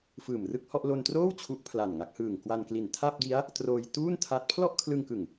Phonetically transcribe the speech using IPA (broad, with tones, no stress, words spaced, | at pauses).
fɯː˨˩mrɯ˥˩k̚hɔ˥˩ʔ lo˧ntroː˥˩w t͡ɕʰu˦˥ʔpʰla˨˩nŋa˦˥k̚hɯː˨˩ŋ kwa˧nkli˨˩n tʰa˥˩p̚di˦˥a̯ | troː˧j tuː˥˩ntʰa˦˥t̚ pʰlɔ˥˩ʔkʰlɯ˧ŋkɯ˨˩ŋ